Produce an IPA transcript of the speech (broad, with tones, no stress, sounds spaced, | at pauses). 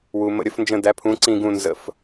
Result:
w u˨ m ə̰˦˨ ɾʲ ə˨˥ f n d͡ʒ ə̃˦˨ d æ˨˥ pʰ ũ˨˥ ǀ ĩ˦˨ ɡ ũ˦˨ n z ə̰˦˨ f